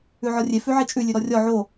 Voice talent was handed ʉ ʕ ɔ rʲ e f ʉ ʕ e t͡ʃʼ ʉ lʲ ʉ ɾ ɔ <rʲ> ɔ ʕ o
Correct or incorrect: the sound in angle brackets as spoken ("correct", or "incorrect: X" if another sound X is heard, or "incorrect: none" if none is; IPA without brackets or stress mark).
correct